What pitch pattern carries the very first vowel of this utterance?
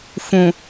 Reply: low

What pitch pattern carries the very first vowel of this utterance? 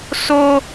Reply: high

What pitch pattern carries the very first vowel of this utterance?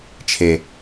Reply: low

